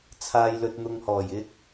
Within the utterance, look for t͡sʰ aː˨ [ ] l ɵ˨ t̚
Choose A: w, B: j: B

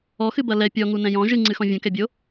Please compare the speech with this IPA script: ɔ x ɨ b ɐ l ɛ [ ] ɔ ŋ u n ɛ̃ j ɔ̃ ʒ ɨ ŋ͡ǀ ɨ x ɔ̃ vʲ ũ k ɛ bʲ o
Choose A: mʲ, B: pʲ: B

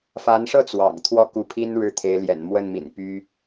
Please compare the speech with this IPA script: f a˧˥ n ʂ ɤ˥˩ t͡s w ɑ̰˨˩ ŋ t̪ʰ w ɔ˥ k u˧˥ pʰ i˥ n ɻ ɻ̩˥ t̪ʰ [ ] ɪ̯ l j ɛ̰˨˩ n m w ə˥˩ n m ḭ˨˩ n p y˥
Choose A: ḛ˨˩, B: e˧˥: B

